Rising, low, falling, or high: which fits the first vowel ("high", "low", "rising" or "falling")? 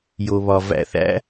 low